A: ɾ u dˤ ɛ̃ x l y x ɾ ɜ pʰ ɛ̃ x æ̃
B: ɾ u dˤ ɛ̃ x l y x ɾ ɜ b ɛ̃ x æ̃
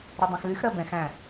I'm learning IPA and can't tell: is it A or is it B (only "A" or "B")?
B